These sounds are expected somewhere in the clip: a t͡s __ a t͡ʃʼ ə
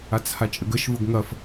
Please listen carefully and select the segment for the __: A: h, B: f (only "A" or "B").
A